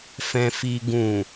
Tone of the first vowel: low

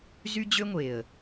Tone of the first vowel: high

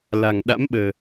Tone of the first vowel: low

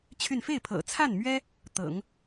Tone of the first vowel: falling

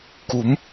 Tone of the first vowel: rising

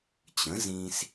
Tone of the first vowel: rising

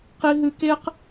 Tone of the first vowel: high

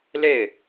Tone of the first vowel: falling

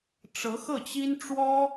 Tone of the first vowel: rising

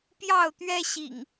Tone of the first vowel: falling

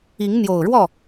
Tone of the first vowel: rising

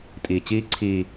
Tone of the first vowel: low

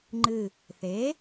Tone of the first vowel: low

